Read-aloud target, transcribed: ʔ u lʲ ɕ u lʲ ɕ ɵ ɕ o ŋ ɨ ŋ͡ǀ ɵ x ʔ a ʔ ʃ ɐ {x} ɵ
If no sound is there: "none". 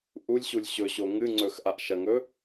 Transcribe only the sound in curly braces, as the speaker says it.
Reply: ŋ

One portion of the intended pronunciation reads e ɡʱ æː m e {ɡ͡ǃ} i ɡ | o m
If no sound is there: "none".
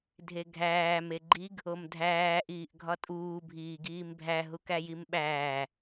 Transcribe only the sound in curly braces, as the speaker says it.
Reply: ɡ͡ǃ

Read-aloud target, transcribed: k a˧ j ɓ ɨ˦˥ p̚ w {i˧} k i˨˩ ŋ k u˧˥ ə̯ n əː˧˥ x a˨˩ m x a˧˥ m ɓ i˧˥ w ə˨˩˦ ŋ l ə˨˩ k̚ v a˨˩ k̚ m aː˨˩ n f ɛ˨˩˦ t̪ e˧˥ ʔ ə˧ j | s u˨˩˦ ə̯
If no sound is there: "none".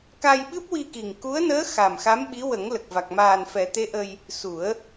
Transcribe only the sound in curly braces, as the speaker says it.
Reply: i˧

